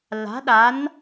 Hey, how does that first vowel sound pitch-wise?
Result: rising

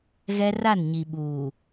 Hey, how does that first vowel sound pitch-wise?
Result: high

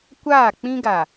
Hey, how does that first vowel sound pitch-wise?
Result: falling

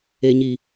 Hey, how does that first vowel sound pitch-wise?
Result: low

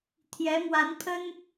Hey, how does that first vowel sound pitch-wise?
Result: rising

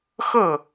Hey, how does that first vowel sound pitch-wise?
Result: falling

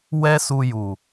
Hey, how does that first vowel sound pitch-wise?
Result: high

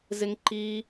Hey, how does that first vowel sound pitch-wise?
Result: high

